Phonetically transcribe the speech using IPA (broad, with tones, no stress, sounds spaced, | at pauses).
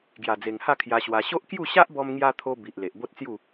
ɡ j a˨˩ d͡z e˨˩ ŋ h a˥˧ kʰ j a˧ ɕ w a˧ ɕ o˦ ʔ k j u˥˧ ɕ a˦ ʔ b ɔ˧ m ŋ j a˧ t̪ʰ o˧ b i˨ ʔ l e˨ ʔ b o˦ t̚ t͡s j u˥˧